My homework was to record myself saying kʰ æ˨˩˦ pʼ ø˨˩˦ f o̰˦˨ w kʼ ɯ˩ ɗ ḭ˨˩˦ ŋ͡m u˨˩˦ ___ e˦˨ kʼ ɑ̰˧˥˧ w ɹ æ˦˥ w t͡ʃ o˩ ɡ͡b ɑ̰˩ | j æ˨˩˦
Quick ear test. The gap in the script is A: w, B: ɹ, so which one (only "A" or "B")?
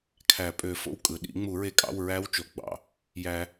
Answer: B